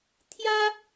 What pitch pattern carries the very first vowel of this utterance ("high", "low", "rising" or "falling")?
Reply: high